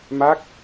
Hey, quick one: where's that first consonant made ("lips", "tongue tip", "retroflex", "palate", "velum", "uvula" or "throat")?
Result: lips